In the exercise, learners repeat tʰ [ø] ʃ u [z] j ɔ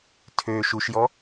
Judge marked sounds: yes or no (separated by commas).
yes, no